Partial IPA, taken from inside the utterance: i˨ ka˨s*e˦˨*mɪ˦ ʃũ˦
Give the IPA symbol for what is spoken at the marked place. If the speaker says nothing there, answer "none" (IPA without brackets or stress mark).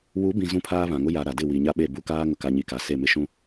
e˦˨